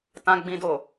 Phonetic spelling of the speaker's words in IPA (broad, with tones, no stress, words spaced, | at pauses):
tã˨ɡ͡bĩ˨ do˨